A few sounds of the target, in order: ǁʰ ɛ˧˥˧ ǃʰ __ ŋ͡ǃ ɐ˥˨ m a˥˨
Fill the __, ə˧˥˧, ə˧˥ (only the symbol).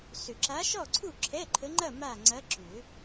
ə˧˥